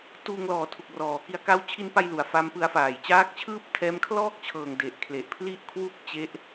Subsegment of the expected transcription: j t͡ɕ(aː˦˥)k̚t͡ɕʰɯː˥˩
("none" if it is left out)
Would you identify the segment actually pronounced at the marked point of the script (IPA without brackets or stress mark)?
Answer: aː˦˥